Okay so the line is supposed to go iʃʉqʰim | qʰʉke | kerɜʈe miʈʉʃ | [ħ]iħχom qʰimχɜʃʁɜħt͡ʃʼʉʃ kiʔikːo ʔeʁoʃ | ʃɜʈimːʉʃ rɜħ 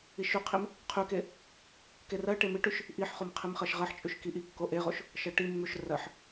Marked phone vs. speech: incorrect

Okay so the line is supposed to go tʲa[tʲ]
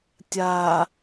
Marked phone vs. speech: incorrect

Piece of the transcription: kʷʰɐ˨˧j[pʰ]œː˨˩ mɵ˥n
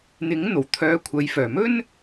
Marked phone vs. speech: incorrect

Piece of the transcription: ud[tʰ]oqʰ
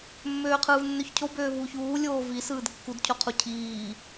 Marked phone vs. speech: incorrect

